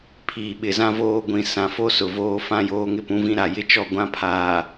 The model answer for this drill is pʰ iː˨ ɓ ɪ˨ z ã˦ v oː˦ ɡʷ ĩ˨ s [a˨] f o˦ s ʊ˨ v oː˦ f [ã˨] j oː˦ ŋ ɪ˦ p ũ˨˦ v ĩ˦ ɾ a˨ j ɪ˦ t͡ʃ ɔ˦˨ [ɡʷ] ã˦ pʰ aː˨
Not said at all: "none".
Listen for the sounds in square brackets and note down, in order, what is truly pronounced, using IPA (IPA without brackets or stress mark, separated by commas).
ã˨, ã˦, ɡʷ